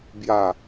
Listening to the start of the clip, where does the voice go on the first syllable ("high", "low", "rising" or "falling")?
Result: low